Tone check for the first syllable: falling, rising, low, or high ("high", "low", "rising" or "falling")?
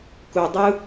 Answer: low